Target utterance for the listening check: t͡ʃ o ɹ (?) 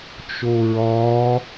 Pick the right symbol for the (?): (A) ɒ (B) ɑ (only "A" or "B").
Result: A